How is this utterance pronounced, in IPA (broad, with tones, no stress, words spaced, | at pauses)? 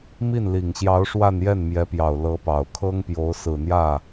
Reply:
mi˥˩nli˨˩ŋɕjɑ˧˥ʊ̯ ʂwa˥˧njɛ˥˩nmjɛ˧˥pjɑ˨˩ʊ̯ lɤ˧˥pɑ˨˩ʊ̯kʰɤ˥ŋpjo˧˥ʊ̯ sɹ̩˨˩n̪jä˥˩